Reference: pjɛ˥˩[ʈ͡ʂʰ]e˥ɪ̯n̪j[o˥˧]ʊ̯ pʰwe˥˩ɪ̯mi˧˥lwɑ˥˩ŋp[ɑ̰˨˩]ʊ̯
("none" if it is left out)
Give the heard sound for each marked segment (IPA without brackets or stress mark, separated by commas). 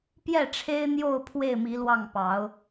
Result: ʈ͡ʂʰ, o˥˧, ɑ˧˥